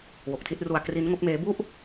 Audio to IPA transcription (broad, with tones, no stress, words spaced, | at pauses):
wo˨˩k̚tʰi˥˩t̚ru˧a̯ kri˦˥nŋo˦˥k̚meː˦˥ bu˥˩ʔ